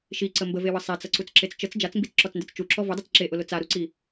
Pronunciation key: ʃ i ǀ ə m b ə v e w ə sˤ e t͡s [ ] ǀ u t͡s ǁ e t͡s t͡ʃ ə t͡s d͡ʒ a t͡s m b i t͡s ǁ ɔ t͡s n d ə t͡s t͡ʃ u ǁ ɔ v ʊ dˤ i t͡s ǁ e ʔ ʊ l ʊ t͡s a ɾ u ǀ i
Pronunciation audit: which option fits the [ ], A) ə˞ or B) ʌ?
B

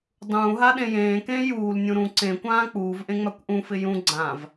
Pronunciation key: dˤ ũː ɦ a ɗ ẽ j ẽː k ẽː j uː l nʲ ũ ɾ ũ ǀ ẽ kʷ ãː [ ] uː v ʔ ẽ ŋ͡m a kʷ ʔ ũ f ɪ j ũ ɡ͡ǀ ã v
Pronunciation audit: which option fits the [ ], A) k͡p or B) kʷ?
A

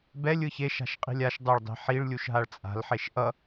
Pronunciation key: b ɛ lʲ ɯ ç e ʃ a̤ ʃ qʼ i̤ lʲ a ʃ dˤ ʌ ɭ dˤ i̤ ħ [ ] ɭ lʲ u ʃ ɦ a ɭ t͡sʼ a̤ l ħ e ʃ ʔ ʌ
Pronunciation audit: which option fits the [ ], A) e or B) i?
B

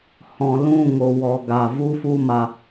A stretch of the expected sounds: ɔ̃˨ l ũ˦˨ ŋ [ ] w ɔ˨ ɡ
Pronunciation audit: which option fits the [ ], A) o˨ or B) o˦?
A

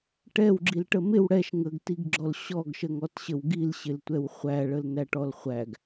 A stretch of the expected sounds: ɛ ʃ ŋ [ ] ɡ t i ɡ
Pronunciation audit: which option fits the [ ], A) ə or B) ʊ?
A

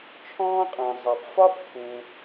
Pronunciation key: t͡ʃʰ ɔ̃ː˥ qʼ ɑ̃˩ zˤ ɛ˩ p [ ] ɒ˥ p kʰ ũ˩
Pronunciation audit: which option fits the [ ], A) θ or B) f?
B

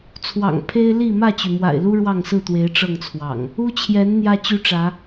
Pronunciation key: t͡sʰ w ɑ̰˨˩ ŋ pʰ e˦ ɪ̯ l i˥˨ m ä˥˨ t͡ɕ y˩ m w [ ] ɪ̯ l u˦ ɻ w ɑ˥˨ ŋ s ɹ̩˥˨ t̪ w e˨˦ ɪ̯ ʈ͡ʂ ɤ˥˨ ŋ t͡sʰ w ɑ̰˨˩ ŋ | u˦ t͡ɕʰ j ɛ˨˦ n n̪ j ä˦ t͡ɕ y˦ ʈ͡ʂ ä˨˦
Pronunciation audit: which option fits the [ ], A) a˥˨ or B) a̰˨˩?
B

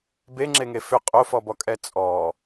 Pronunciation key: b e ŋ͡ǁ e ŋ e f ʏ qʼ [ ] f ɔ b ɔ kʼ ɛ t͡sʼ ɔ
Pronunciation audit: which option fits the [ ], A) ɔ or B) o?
B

